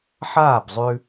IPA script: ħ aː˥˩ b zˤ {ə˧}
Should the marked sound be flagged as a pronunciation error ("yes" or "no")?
yes